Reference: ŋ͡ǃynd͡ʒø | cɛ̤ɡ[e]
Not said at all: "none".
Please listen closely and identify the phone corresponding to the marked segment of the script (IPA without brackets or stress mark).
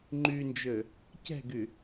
y